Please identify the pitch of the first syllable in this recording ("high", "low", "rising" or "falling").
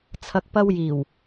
low